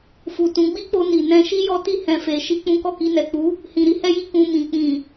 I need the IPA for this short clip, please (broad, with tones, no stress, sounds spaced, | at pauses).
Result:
f u˨ t ũ˨˦ ɡ͡b i˦ k͡p o˧ n i˨ n ɛ̃˧ ʃ i˦ j ɔ˦ t i˦ h ɛ̃˦ f e˧ ʃ i˦ k͡p ũ˦ k ɔ˦˨ k i˧ n ɛ˨ k͡p u˨˦ | h ĩ˨ ɾ i˨˦ h ɛ˦ j i˦ k ũ˧ m ĩ˨ k͡p ĩ˨